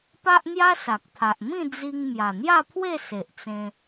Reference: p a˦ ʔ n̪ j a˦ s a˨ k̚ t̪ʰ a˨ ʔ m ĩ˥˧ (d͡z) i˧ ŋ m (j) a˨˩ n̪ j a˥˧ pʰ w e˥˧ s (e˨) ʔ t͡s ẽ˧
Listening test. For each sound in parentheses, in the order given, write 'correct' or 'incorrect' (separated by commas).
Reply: correct, correct, correct